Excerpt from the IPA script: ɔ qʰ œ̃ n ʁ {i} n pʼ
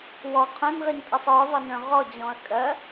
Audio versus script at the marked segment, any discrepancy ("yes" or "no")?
no